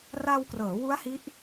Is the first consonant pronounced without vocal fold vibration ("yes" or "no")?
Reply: no